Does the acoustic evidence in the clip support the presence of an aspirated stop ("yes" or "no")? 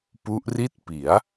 no